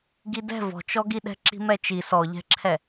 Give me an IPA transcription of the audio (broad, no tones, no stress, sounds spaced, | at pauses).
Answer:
ɡ i d ɛ̤ v ɔ̤ t͡ʃ ɔ ɡ i ɗ ɛ̤ ǁ i̤ m ɛ t͡ʃ i s ɔ ʎ ɛ̤ ǁʰ ɛ